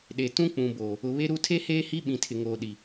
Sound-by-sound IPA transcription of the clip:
ɗ e˨ t ũ˦ k͡p ũ˨ b oː˨ | ʊ˨ β e˦ ɾ u˦ tʰ e˦ h eː˦ h i˦ ɓ ĩ˨ tʰ ɪ˨ ŋ oː˨ ɗ i˨

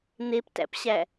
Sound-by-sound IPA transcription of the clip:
n̪ e p t æ̰ p ɕ æ

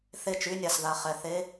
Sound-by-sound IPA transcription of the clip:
θ e˥˩ t͡ʃ y˧˥˧ nʲ a˨ s ð a˨ χ ɛ˨ θ e˧˥˧

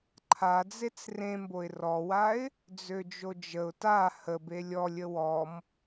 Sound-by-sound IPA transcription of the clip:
ǃʰ a d͡z e t͡s r ẽ m b o ɪ̯ r ɔ w a ɪ̯ | d͡z ø d͡ʒ o d͡ʒ ə ʊ̯ t a h ə b e lʲ ɔ lʲ ə w ɔ m

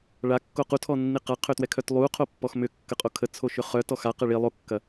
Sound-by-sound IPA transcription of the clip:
ɭ a kː o q u tʰ ɔ nː i q a qʰ ø t w ɛ kʰ œ t lˠ u qʰ o pː ɔ x m ʏ kː ə qʼ o kʰ ə t͡sʰ o ʃ ʏ χ œ t ɔ x a q ɐ ɭ i lˠ o kː ɐ

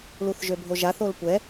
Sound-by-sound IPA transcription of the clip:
l u θ ʒ ø bʱ o ʒ a θ o l kʷ ɛ

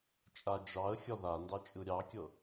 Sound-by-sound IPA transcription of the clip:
t͡ʃʼ a d͡ʒ ɑ ə̯ xʲ ɒ ð a n d ɑ t͡ʃʼ ɯ ɾʲ ɑ kʲ ɤ

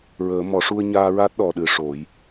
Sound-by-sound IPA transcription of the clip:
ɹ əː˨˩˦ m ɔ˨˩˦ ʂ u˧ ə̯ ɲ aː˧ ɹ a˦˥ t̚ ɗ ɔ˨˩ ɗ ɨ˨˩˦ ʂ o˨˩˦ j

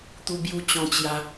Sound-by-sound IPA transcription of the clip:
t̪ u˧ b j u˧ t͡ɕ ɔ̃˧ t͡ɕ j a˧

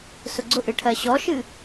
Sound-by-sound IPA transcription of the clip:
s ʊ ɡ͡ǀ ʊ ʔ ɨ ʈʰ ɜ ɕ ɔ ʃ ɨ

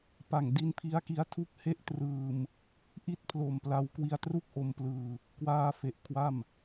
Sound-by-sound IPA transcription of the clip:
p a˨˩ ŋ d i˦˥ n pʰ i˦˥ a̯ k i˦˥ a̯ tʰ u˦˥ k̚ h e˥˩ ʔ t r ɯː˧ m | ʔ i˥˩ t̚ pʰ l o˨˩ m p l a˦˥ w k w i˧ a̯ t r u˥˩ k̚ ʔ o˧ m p l ɯː˧ | k w aː˧ f e˨˩ ʔ kʰ w a˥˩ m

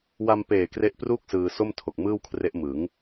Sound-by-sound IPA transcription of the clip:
w a˧ m p eː˨˩ k r e˦˥ ʔ p r uː˥˩ k̚ s ɯː˧ s o˥˩ m tʰ o˨˩ k̚ m ɯː˥˩ w kʰ r e˦˥ ʔ m ɯ˩˦ ŋ

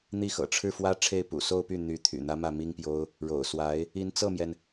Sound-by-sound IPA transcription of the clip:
n̪ i˥˩ x ɤ̰˨˩ ʈ͡ʂʰ ɻ̩˥˩ f w ä˥ ʈ͡ʂʰ e˥˩ ɪ̯ p ṵ˨˩ s o˥˧ ʊ̯ p y˥˩ n̪ y˧˥ t̪ʰ y̰˨˩ n̪ ä˥ m ä˥˩ m i˥ ŋ p j o˥ ʊ̯ | ɻ o̰˨˩ ʊ̯ s w a˧˥ ɪ̯ | i˧˥ n t͡s ɤ˥˩ m j ɛ˩ n

